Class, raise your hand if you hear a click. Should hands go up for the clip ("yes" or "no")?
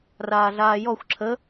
yes